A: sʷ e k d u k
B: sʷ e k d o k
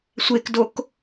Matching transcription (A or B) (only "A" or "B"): B